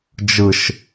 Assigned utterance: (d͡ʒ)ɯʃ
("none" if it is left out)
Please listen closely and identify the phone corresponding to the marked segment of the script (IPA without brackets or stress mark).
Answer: d͡ʒ